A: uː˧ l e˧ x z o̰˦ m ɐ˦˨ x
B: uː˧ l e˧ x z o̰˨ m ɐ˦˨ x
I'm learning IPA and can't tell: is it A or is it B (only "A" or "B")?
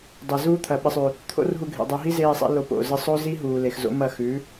A